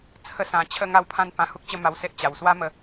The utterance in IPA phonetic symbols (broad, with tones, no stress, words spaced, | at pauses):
t͡sʰə˦sã˧ t͡ɕʰə˥˧ ŋa˦wpʰã˥˧n pã˧hu˦k̚t͡ɕə˥˧ma˧w se˦ʔt͡ɕa˨˩w swa˦mə˧